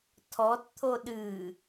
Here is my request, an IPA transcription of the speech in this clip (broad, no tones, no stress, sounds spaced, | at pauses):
tʰ ɔ t t̪ʰ o ɗ ɨ